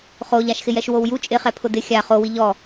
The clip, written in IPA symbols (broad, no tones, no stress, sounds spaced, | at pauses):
χ o ʎ a ʃ x ɪ j ɛ ʃ w o w j u t͡ʃʼ ɪ χ ɛ pʰ ʊ d ɪ xʲ a χ o w i ʎ ɔ